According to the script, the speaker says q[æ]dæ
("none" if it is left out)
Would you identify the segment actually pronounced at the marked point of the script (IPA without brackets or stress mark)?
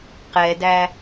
ɛ